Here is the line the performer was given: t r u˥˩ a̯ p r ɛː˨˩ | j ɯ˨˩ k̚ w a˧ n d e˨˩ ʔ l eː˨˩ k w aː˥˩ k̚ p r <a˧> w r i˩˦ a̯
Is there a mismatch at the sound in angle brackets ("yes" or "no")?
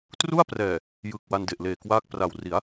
yes